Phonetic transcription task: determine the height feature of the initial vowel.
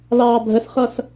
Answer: low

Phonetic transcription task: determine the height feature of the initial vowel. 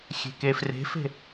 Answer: mid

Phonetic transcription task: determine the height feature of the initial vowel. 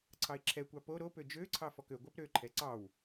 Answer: low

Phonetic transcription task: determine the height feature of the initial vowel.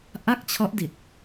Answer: low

